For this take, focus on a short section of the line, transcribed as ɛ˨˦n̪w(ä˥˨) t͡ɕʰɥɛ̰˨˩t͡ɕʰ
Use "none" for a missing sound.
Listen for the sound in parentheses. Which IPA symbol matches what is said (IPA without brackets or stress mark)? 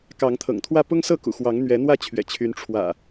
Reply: ä˥˨